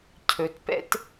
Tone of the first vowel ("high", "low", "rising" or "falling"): low